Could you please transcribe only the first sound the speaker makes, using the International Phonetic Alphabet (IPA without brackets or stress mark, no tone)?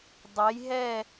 dˤ